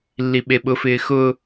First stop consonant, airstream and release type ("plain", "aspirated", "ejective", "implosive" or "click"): implosive